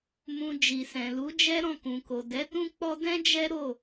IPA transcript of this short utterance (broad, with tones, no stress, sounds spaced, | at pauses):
m ũ˧ d͡ʒ i˨ s ɛ̃˨ l u˨˦ d͡ʒ ɛ˦ ɾ ɔ̃˦˨ k ũ˨ k o˨ d ɛ˨˦ t ũ˦ k͡p ɔ˦ d ɛ̃˦ d͡ʒ ɛ˦ ɾ o˦˨